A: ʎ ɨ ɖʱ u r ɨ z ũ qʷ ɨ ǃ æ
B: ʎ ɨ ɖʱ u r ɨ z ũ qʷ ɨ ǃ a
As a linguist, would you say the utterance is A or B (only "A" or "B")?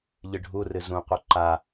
B